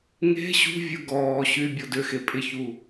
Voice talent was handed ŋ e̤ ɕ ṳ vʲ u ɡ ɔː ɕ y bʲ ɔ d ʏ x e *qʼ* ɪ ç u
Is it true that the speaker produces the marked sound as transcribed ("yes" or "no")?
no